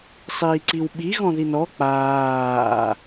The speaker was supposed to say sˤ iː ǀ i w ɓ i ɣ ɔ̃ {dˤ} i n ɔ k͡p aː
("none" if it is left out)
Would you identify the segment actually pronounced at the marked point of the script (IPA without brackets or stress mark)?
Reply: ð